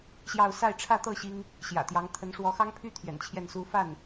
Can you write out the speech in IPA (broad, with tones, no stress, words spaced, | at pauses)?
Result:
ɕjɑ˥˧ʊ̯ sa˥˧ɪ̯ʈ͡ʂʰä˥˧t̪ɤ˥˩ ɕi˥ŋ | ɕjä̰˨˩t̪jɑ˧˥ŋ t̪ʰə˧˥nʂwɔ˧˥xɑ˥ŋpʰy˥ t̪ʰjɛ̰˨˩nt͡ɕʰjɛ˥˩nsu˥ fa˥˩n